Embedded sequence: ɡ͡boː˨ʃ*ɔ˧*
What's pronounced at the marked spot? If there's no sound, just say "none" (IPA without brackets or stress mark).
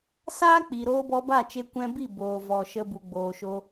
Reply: o˧